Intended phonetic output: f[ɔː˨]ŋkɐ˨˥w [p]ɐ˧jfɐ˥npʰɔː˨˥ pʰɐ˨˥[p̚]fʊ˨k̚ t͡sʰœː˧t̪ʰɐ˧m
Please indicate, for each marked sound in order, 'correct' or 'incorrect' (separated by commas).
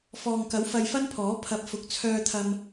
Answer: correct, incorrect, correct